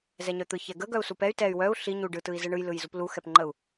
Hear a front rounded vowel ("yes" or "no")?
yes